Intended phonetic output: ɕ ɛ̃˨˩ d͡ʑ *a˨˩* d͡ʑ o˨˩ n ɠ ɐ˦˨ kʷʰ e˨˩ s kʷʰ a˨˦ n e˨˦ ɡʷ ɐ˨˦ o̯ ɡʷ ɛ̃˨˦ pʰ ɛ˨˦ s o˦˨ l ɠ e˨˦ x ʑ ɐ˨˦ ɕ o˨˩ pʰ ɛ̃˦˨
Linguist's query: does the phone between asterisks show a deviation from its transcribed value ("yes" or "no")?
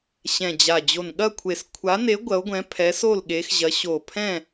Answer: no